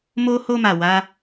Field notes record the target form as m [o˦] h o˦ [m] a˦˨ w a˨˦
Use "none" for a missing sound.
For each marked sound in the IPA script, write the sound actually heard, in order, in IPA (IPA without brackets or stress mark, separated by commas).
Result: o˦, m